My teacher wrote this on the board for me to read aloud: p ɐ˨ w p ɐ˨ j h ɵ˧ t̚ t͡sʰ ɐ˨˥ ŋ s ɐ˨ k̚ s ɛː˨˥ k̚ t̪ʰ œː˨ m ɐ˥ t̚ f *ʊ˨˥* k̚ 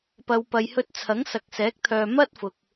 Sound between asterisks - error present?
yes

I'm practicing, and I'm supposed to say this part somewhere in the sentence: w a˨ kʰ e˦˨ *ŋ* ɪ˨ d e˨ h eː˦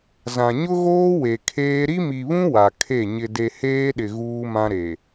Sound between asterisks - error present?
yes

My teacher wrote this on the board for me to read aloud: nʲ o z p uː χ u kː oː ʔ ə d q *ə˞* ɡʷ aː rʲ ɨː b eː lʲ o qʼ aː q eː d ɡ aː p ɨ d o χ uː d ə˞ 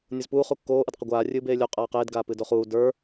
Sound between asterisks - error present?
yes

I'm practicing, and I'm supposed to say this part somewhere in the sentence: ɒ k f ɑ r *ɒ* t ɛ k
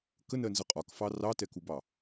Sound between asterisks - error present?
yes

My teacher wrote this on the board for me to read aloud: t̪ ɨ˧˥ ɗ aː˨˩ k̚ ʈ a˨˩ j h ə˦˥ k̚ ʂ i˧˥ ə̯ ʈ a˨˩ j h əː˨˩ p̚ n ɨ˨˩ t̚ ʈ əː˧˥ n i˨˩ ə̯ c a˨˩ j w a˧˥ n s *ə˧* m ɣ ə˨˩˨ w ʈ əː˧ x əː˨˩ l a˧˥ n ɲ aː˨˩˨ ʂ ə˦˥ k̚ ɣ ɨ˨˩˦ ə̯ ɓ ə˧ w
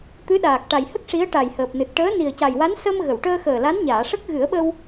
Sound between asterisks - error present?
no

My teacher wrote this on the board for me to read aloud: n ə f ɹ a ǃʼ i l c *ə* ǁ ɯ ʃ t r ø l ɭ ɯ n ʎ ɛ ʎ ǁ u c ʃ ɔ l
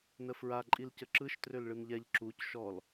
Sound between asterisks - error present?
no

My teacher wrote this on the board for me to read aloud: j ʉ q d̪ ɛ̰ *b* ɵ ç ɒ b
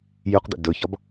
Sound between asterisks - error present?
yes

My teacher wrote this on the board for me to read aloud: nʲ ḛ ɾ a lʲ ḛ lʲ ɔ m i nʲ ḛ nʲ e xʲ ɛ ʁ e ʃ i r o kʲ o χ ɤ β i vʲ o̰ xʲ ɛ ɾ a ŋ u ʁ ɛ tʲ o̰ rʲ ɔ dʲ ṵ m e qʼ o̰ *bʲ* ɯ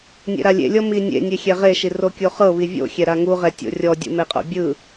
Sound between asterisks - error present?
no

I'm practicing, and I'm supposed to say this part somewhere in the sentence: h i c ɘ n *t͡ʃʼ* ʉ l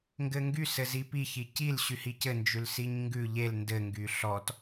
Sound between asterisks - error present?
yes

